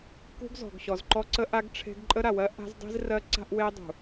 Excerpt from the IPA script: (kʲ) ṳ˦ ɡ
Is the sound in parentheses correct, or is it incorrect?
incorrect